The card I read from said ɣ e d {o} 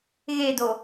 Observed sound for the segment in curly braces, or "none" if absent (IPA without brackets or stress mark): o